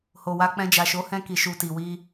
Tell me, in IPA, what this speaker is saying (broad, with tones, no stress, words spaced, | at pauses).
ho˨wa˧k͡pɛ̃˧ d͡ʒa˨ʃo˨˦hɛ̃˧ki˨ ʃu˨ ti˨wi˧